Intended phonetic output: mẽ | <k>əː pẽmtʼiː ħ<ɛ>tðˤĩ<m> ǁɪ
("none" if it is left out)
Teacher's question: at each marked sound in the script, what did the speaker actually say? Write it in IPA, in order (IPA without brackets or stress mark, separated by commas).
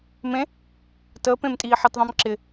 t, ɪ, m